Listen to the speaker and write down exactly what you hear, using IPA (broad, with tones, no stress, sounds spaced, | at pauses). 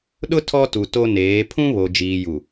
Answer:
ɗ ʊ˦ tʰ ɔ˦ t u˨ t o˦ n eː˨˦ pʰ ũ˦ β o˨ d͡ʒ iː˨ j u˨